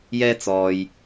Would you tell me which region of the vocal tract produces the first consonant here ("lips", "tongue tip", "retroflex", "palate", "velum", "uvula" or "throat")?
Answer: palate